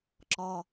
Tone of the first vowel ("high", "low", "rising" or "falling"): high